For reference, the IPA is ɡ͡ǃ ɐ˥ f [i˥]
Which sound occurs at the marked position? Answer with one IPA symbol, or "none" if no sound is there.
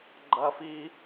i˥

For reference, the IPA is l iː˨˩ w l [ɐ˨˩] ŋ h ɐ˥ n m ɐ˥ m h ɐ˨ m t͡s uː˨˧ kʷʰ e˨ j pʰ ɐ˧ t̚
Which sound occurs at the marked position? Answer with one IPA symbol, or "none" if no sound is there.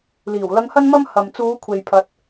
ɐ˧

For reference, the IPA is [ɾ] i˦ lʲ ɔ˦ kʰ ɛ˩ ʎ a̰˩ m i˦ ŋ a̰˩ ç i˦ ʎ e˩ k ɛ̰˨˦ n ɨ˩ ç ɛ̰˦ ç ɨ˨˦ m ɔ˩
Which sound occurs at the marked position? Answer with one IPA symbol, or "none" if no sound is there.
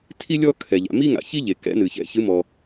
tʰ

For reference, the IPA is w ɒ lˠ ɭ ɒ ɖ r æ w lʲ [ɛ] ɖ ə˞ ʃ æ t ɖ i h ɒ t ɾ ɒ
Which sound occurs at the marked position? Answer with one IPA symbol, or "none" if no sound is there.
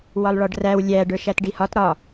æ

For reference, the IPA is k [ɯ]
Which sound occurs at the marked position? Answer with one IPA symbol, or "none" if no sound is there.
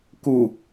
u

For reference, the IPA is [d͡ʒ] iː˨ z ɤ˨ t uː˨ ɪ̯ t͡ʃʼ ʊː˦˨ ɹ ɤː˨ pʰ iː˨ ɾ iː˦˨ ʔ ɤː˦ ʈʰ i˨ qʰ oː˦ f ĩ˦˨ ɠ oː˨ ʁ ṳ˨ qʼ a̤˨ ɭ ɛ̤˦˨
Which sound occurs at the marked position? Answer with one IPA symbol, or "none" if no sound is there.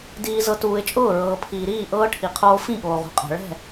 d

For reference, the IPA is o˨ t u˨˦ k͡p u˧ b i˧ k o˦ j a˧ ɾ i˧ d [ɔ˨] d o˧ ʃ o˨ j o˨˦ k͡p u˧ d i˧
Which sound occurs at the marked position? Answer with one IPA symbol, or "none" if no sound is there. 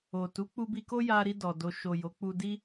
ɔ˨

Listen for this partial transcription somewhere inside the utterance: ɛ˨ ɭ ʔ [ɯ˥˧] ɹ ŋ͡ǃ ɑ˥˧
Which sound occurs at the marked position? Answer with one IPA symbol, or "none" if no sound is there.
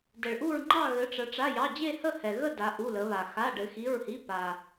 u˥˧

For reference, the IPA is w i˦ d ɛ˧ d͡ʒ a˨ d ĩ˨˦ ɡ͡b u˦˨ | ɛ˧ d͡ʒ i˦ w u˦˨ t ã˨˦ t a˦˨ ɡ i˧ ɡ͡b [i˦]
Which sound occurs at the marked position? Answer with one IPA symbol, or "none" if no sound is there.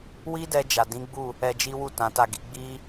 i˦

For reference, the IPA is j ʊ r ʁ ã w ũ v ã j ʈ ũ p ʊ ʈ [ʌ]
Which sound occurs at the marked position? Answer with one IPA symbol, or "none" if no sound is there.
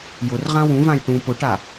a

